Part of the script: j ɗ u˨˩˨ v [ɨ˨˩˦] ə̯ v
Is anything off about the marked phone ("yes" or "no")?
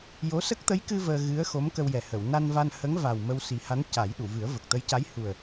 no